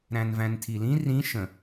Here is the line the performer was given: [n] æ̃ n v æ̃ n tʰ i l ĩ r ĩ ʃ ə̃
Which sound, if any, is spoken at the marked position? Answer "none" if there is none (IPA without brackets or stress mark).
ɾ